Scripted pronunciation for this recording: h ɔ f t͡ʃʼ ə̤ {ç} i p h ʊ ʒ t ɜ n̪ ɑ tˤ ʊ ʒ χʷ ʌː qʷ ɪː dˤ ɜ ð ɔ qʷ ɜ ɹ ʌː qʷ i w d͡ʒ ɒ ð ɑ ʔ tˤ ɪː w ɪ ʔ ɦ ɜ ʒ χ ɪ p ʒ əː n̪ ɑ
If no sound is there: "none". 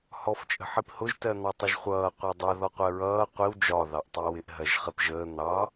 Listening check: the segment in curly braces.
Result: ħ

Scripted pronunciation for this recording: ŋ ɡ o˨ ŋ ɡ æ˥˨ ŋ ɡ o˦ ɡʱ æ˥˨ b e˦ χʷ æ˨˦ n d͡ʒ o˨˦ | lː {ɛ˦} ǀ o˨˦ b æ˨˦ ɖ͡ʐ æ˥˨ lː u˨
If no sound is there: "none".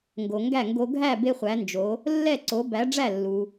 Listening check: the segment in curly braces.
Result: ɛ˥˨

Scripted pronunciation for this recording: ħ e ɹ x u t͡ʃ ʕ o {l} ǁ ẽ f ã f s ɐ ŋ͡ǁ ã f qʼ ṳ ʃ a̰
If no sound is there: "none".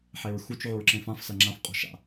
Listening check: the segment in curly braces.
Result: ɹ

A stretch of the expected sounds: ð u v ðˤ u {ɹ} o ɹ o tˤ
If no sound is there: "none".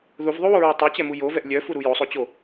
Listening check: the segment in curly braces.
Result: w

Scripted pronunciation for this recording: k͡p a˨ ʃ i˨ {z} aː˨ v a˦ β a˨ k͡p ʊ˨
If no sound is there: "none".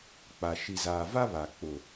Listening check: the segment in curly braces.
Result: z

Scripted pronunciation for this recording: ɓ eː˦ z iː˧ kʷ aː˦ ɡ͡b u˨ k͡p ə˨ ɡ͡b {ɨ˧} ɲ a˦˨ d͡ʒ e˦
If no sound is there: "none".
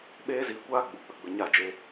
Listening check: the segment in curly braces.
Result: ə˧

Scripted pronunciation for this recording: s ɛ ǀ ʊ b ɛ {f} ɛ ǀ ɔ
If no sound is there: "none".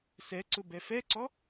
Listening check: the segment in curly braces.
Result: f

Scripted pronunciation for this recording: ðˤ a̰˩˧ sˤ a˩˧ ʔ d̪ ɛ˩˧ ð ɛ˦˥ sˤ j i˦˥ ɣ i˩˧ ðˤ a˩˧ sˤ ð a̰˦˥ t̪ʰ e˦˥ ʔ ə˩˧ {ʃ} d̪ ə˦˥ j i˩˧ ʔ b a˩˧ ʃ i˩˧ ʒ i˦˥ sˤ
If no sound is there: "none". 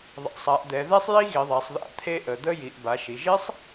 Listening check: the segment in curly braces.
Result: none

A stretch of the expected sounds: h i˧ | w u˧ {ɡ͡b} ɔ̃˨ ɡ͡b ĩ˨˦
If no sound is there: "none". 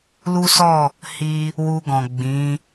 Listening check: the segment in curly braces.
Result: ɡ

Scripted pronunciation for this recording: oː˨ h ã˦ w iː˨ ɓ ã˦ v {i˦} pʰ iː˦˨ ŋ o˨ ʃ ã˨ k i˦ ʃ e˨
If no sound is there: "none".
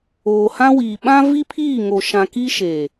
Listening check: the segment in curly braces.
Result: i˦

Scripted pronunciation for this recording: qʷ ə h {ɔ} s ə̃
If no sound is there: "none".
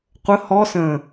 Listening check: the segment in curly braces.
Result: ɔ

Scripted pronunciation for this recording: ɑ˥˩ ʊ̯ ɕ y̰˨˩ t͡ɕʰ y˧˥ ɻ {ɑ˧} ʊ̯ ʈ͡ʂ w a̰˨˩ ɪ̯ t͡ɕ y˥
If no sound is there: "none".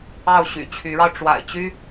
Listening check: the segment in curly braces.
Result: ɑ˧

